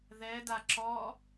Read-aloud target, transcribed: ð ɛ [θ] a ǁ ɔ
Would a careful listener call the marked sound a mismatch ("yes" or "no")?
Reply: yes